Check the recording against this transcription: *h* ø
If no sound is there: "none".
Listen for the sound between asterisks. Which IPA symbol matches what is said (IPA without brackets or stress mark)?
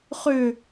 χ